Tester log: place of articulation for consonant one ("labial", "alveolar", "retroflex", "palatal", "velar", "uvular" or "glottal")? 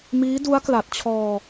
labial